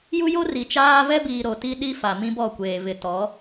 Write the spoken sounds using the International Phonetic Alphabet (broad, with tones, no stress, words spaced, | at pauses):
ju˦jo˦ ri˨t͡ʃaː˦ vɛ˦biː˨ ɾo˨ti˦ɗi˦ fa˨ mĩ˦bɔ˦˨kʷeː˨ vɪ˨tɔ˨˦